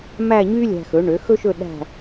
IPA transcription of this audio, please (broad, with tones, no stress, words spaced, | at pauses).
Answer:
mæ˥˧ɲy˥lʲæ̤˧xɵ˩˥ ɳø˩˥xɵ˥ʃɵ˥˧ ɗæ̤˥˧